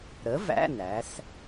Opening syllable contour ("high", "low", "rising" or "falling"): rising